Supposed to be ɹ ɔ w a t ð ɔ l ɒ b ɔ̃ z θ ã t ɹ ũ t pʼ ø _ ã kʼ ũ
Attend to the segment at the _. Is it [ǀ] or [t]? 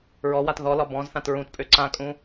ǀ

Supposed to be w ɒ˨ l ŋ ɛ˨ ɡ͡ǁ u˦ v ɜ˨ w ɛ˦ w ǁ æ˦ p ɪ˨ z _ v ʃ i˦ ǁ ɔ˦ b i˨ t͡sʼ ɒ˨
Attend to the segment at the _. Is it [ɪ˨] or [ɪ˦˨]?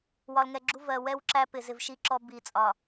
ɪ˨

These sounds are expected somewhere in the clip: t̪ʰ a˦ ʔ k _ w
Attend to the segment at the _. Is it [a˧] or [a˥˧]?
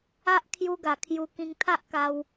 a˧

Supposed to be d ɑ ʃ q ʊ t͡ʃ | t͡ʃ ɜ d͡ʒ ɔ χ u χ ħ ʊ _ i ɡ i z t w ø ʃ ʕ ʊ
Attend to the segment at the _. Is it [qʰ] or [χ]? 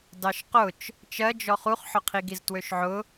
qʰ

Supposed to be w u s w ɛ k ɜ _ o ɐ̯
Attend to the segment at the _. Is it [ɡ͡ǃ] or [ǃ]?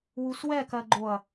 ɡ͡ǃ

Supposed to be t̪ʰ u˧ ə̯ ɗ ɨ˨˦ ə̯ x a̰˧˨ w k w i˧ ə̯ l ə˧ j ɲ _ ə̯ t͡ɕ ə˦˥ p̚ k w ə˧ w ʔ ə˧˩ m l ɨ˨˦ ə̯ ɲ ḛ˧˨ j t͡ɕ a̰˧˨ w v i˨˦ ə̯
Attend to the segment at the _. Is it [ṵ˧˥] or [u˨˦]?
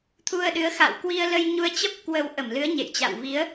u˨˦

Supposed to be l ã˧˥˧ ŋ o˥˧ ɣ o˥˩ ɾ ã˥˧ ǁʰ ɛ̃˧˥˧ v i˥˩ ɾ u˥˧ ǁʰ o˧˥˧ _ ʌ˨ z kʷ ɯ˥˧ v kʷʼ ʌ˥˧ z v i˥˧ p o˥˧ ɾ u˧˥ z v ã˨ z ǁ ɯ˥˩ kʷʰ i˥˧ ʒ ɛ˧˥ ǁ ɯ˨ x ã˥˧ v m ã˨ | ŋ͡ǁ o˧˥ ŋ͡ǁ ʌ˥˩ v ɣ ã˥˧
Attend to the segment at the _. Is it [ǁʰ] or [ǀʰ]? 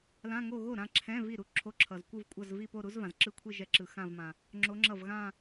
ǁʰ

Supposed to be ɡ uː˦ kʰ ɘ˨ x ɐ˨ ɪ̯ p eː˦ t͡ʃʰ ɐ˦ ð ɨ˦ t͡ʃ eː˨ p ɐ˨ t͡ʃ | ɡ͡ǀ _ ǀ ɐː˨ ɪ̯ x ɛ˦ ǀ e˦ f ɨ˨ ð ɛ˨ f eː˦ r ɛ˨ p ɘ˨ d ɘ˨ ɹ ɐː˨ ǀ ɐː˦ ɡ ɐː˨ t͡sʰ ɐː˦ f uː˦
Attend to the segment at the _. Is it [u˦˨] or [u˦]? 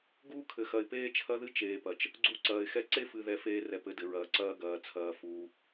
u˦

